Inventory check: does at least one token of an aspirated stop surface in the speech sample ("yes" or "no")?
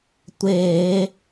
no